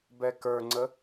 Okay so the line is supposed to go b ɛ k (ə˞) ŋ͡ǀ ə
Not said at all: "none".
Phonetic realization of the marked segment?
ə˞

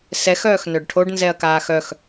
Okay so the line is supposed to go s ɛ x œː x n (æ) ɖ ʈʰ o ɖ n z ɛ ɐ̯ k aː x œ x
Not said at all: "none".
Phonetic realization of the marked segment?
œ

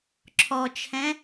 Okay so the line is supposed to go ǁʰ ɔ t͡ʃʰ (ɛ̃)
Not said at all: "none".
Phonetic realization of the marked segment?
ɛ̃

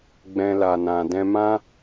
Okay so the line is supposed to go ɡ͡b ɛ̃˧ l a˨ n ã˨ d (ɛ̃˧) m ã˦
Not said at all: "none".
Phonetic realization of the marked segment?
ɛ̃˧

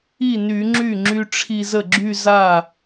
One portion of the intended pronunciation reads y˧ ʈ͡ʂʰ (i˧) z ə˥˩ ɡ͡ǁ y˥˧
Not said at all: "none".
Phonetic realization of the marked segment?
i˧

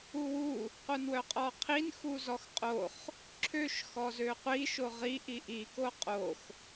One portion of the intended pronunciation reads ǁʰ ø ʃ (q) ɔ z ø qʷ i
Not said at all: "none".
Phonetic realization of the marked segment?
x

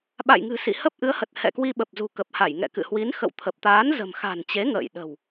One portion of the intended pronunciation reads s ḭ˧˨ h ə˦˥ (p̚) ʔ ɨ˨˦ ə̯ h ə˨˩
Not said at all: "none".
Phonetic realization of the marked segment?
p̚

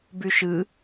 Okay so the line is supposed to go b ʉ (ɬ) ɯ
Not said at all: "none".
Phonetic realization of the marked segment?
ʃ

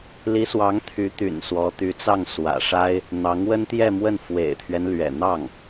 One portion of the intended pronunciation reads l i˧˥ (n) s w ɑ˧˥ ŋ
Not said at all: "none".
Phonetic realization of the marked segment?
none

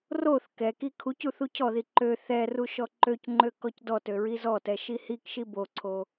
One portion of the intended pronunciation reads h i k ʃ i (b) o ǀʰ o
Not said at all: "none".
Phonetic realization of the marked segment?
b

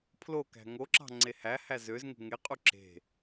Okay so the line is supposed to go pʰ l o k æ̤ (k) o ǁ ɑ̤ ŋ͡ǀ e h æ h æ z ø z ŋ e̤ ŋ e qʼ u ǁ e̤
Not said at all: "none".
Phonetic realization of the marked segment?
ŋ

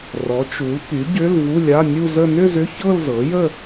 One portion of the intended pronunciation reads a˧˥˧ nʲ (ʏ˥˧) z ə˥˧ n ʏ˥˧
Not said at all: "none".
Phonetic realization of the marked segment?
u˥˧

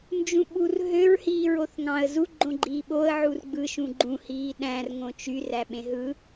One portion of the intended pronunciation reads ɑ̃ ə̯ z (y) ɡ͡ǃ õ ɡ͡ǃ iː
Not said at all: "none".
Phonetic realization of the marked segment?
u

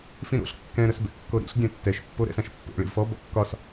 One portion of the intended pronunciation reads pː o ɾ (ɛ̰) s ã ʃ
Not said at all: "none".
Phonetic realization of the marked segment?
ɛ̰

